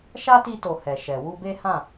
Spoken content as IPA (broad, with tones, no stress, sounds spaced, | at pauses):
ʃ a˦ t i˧ t o˨ h ɛ˨ ʃ ɛ˨ w u˧ b e˦ h ã˦˨